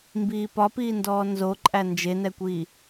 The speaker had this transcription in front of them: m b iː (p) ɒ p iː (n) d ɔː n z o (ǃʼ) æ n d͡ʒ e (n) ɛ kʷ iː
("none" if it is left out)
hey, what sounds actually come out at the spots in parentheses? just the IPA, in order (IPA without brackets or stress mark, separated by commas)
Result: p, n, ǃʼ, n